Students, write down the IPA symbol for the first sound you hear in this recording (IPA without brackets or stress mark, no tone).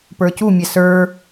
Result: p